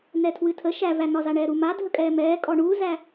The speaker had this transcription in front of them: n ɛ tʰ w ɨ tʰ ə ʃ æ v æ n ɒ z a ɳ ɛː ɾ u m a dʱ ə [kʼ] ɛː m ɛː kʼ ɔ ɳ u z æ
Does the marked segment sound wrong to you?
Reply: no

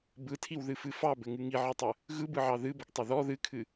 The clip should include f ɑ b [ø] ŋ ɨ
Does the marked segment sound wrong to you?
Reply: yes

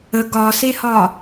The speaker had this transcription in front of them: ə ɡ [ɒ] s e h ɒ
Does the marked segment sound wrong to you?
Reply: no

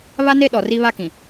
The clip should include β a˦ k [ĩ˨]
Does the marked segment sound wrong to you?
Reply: no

